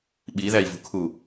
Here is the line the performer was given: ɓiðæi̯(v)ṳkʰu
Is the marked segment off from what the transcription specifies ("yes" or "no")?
no